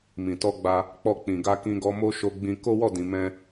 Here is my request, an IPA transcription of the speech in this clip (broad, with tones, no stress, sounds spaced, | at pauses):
m ĩ˨ t ɔ˧ ɡ͡b a˧ | k͡p ɔ˧ k͡p ĩ˨ ɡ a˧ k ĩ˧ ɡ ɔ˧ m o˦ ʃ o˧ ɡ͡b ĩ˧ k o˦ w ɔ˦˨ d ĩ˨ m ɛ̃˧